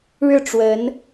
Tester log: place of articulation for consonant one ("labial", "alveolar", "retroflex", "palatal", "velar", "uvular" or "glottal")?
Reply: retroflex